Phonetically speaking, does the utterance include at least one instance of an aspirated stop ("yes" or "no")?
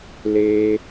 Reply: no